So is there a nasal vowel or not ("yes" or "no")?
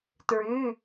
no